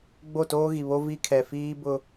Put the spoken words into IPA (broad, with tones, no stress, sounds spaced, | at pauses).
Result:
ɡ͡b o˦˨ t oː˦ ɣ i˨ β o˦ v i˦ kʰ ɛ˨ f iː˦ b ʊ˦